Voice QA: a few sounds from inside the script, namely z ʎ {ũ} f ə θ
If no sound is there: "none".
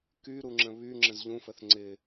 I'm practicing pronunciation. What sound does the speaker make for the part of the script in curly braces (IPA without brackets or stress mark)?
ũ